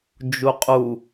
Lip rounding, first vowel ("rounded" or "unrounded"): rounded